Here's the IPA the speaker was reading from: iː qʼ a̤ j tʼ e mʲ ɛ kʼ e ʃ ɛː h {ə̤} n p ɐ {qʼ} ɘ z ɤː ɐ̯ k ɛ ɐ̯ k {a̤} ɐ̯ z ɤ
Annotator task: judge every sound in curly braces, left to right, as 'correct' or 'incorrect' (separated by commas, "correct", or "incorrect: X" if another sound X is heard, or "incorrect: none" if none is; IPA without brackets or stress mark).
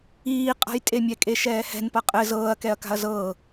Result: incorrect: ɛ̤, correct, correct